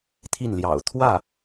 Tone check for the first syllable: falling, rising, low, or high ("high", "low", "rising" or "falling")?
falling